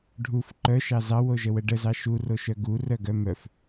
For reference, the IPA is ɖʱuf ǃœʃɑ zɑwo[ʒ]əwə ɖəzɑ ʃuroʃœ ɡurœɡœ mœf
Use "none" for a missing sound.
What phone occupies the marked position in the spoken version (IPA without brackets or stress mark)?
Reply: ʒ